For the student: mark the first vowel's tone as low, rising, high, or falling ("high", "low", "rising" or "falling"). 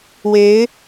rising